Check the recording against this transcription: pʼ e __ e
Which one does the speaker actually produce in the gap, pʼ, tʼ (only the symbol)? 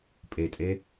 tʼ